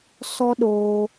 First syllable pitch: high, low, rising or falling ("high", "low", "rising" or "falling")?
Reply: high